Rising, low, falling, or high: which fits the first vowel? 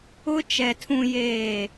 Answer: high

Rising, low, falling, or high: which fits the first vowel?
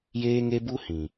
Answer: high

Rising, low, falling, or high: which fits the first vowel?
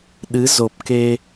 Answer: rising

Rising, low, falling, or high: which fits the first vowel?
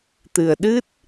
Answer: low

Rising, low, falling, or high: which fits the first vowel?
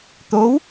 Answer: rising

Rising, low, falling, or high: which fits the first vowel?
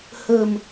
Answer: low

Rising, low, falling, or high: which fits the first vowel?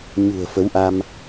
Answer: low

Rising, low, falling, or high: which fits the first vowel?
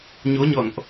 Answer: rising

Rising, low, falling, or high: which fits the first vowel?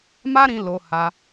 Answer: high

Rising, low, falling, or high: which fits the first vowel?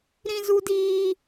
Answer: high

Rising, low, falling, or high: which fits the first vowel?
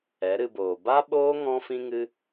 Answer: rising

